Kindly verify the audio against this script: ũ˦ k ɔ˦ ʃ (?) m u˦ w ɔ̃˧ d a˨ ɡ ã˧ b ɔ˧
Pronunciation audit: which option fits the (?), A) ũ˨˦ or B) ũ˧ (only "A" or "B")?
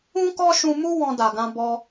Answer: B